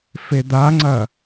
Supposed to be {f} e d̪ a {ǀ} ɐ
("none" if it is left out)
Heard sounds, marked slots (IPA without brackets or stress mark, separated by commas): f, ŋ͡ǀ